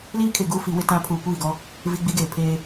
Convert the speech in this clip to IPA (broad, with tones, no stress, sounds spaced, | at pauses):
l iː˦ kʰ e˨ ɡ uː˦ f i˨˦ w ɪ˦ t ã˦ pʰ uː˨ kʷ iː˦˨ ɡ ɔ˦ | v i˦ ɡ͡b i˦ ɡ eː˨ pʰ eː˦